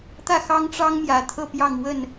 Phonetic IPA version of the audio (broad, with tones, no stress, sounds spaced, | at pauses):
t̪ ä˥˨ x ɑ˦ ŋ ʈ͡ʂ ɑ˦ ŋ m j ä˨˩ t̪ʰ ɤ˥˨ p j ɑ˥˨ ŋ w ə˥˨ n